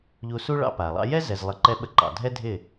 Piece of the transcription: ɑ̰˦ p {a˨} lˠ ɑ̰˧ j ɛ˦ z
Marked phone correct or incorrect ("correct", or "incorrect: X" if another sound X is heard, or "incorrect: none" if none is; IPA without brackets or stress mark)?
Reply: correct